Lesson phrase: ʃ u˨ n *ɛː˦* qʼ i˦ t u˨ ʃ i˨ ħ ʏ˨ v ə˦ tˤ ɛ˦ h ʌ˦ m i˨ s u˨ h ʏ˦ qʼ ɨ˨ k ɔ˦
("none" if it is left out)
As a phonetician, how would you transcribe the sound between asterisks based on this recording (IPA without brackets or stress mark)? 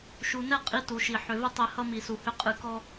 ɛ˦